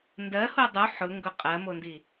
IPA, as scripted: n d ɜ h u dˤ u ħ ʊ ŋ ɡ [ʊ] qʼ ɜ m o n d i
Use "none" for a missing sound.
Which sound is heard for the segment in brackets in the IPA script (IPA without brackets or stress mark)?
ʊ